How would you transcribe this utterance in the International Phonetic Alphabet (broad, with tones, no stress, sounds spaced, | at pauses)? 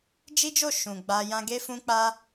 d͡ʒ i˦ d͡ʒ o˦˨ ʃ ũ˨ ɡ͡b a˧ j ã˧ ɡ e˦ f ũ˦ k͡p a˦